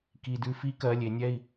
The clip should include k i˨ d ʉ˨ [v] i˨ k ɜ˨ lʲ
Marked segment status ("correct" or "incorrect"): incorrect